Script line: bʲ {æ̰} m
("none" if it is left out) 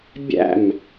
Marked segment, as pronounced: æ̰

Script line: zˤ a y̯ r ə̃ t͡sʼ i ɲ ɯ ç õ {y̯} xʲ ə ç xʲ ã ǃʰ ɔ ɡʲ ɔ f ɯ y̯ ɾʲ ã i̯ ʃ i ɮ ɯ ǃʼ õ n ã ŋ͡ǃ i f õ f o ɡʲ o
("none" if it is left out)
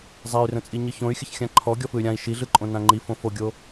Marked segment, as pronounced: y̯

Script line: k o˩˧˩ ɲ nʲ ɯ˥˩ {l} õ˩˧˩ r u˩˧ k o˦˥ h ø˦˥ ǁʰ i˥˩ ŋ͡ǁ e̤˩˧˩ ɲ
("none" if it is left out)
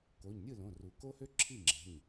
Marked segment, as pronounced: l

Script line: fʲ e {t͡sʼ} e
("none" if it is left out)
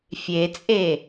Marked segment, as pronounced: t͡sʼ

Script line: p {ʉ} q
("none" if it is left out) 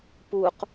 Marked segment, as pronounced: u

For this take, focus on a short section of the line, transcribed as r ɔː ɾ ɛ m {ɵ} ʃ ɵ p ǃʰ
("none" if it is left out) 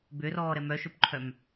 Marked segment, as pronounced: œ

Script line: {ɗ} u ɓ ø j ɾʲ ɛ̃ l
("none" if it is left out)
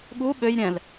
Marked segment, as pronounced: ɠ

